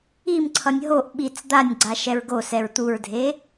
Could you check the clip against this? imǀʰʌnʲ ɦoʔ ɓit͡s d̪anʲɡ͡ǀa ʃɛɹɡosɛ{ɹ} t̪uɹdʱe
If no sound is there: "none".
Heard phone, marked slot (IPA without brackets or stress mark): ɹ